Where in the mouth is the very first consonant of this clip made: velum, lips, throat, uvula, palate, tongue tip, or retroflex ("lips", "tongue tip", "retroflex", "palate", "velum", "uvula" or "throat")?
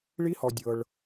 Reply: retroflex